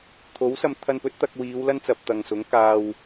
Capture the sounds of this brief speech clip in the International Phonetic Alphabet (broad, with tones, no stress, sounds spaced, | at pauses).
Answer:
t̪ʰ o˨˥ w s ɐ˧ m t̪ʰ ɐ˧ n p ɵ˨˥ t̚ t̪ ɐ˧ k̚ w iː˨˧ w l ɐ˥ n t͡s ɐ˨ p̚ t̪ ɐ˨ ŋ s ʊ˨˥ ŋ k aː˧ w